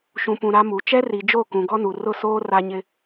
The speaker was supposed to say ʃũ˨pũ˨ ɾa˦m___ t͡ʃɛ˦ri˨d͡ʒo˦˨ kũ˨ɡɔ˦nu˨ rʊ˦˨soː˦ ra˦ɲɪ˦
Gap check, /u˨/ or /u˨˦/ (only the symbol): u˨˦